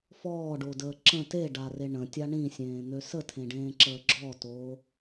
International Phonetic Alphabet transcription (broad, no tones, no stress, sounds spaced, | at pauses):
f ɔː ɖ o d əː ǁ ə̃ t e ɖ a r e ɳ ə̃ tʲ a ɳ ĩ sʲ ẽː n̪ ø s ə tʰ ẽ ɖ ẽː ǁ əː ɡ͡ǁ ɔ t oː